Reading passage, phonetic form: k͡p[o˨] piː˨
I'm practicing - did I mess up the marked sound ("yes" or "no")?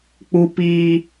yes